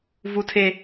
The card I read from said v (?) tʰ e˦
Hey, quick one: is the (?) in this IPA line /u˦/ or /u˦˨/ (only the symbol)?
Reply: u˦